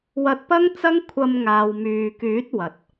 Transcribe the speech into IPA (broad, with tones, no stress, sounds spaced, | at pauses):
w ɐ˧ t̚ p ɐ˥ ŋ t͡s ɐ˥ ŋ kʷʰ ɐ˧ m ŋ aː˨ w m yː˨ k yː˨˥ t̚ w ɐ˨ t̚